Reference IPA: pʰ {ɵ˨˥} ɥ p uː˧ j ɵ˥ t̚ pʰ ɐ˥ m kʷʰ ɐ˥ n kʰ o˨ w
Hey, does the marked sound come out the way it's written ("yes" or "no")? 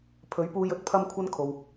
yes